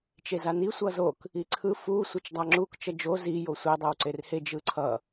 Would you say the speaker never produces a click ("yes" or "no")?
no